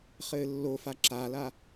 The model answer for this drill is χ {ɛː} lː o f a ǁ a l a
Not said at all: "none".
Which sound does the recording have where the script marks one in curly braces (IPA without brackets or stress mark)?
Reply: ɘː